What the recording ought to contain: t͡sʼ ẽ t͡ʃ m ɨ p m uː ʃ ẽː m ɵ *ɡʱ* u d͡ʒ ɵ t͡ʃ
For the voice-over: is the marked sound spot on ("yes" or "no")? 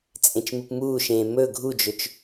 yes